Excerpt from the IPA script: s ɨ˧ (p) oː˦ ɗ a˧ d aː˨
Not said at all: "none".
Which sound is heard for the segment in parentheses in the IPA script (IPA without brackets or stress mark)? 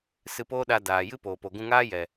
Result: p